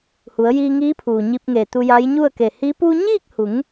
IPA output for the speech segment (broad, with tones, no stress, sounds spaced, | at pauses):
h u˩˧ ə̯ j iː˧ ŋ iː˧˥ pʰ uː˩ ɲ i˧ p̚ ŋ e˧˩ t̪ u˧ j a˧˥ j ɲ u˥˨ ə̯ k e˧˩ h i˧˥ p u˧ ɲ iː˥˨ k̚ h u˩˧ ŋ